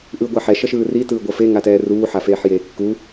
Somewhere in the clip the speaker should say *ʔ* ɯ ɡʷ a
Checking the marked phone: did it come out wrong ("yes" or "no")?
no